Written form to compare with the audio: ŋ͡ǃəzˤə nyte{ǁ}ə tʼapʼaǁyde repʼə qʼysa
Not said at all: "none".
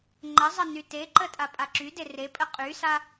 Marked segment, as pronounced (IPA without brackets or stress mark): ǃ